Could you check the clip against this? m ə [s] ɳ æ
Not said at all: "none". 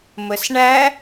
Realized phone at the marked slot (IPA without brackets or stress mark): s